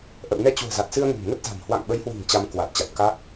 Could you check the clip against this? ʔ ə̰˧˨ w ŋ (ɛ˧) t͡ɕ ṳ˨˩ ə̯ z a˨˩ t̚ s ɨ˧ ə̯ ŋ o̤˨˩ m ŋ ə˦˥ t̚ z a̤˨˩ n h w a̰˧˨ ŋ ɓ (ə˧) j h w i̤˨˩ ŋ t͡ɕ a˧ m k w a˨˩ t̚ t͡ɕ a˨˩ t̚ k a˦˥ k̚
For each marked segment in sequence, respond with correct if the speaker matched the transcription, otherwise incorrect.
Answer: correct, incorrect

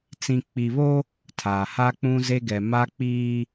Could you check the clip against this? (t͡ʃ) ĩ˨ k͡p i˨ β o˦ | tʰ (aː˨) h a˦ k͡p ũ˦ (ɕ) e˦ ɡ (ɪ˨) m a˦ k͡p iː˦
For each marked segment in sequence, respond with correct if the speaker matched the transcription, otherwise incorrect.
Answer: incorrect, correct, incorrect, incorrect

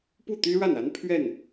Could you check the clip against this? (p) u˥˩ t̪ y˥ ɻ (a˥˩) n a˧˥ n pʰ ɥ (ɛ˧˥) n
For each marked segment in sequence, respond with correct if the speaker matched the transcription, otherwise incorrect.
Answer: correct, correct, incorrect

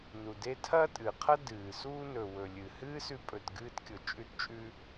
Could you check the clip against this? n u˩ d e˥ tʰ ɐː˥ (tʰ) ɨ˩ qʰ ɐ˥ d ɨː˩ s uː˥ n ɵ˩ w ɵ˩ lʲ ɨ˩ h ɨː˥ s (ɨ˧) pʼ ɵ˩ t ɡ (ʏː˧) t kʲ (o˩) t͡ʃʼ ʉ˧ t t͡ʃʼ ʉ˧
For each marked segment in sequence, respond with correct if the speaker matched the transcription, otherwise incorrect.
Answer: incorrect, incorrect, incorrect, correct

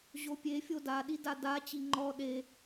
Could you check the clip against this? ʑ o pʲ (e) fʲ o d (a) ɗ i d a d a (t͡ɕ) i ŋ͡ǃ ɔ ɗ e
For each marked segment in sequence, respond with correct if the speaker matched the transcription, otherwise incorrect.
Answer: correct, correct, correct

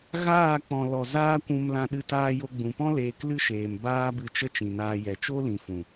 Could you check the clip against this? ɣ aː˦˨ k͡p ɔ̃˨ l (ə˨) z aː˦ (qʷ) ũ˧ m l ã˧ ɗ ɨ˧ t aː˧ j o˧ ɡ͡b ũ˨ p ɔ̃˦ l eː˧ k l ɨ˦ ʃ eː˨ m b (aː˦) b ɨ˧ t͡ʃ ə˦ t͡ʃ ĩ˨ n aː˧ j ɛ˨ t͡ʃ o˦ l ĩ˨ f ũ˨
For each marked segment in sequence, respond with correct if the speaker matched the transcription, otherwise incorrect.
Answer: incorrect, incorrect, correct

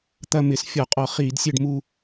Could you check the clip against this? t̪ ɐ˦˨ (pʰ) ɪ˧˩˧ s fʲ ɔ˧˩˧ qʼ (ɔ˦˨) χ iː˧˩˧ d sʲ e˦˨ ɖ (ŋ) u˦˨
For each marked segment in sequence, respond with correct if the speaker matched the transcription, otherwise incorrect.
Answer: incorrect, incorrect, incorrect

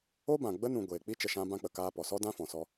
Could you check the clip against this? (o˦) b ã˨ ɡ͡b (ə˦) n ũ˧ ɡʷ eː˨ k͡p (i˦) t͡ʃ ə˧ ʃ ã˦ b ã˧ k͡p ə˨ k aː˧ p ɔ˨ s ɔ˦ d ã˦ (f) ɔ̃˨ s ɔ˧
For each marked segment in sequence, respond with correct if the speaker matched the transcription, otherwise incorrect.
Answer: correct, correct, correct, correct

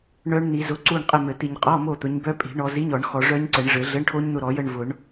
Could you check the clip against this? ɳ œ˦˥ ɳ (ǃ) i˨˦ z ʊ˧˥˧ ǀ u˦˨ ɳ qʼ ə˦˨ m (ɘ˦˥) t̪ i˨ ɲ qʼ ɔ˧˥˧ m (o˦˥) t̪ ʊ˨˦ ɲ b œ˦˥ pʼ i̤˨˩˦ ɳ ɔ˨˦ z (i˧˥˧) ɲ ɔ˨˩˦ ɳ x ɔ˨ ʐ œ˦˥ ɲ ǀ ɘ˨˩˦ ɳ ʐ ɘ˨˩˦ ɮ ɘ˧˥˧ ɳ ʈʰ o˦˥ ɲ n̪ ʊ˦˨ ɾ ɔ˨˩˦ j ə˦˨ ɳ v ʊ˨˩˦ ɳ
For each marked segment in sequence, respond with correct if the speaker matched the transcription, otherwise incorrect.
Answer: incorrect, incorrect, incorrect, correct

